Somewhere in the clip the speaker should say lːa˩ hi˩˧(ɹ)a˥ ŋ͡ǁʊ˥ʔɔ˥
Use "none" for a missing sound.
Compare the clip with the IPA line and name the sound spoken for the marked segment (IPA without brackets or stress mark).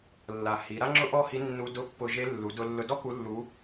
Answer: ɾ